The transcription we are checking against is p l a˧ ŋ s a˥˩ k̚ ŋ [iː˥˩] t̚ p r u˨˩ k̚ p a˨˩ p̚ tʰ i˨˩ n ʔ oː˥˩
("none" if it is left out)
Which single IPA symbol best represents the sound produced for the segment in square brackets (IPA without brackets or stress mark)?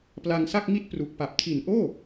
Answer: i˥˩